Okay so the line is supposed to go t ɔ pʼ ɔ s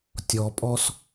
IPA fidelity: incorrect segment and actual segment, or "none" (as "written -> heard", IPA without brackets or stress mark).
t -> tʲ